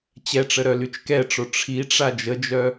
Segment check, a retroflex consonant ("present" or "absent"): present